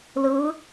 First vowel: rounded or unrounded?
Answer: unrounded